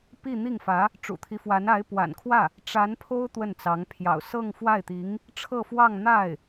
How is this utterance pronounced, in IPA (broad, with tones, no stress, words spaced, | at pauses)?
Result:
pi˥˧n̪i˥˩ŋfä˧˥ | ʈ͡ʂṵ˨˩t̪ʰi˦fwa˧˥n a˧˥ɪ̯pwa̰˨˩nkʰwä˥˩ | ʈ͡ʂa˧˥npʰo˥ʊ̯ t̪wə˥˩nt͡sɑ˧˥ŋ pʰjɑ̰˨˩ʊ̯ sɤ˥˧ŋfwa˥˩ɪ̯t̪i˧˥ŋ | ʈ͡ʂʰɤ˥˧fwɑ˥˧ŋ n̪a˥˩ɪ̯